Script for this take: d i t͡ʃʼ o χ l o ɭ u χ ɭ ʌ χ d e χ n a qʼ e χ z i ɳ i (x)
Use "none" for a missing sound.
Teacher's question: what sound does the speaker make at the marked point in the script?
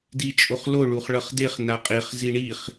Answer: χ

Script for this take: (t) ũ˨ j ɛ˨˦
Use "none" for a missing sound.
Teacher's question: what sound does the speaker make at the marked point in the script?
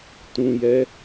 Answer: t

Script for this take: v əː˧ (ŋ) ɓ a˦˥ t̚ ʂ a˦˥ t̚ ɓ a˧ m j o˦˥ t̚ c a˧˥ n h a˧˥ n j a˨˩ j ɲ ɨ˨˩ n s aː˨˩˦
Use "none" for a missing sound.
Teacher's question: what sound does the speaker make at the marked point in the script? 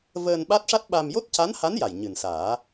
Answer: n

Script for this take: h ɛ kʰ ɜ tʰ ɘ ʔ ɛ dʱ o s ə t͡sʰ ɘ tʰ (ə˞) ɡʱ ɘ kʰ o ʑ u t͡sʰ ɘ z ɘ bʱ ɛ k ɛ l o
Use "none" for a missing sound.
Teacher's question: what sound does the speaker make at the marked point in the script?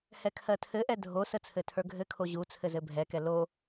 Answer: ə˞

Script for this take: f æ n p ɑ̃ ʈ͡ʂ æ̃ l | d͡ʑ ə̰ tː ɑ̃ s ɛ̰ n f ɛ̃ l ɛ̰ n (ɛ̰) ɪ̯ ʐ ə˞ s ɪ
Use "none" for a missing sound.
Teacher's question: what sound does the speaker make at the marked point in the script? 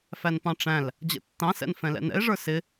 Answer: ɛ̰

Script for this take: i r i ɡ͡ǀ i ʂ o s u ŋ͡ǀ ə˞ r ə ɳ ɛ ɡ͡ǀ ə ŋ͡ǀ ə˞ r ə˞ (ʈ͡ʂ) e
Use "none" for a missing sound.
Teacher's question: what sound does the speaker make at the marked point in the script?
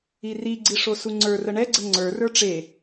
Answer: ʈ͡ʂ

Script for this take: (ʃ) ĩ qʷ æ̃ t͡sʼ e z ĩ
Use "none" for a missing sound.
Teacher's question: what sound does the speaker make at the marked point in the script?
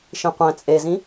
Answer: ʃ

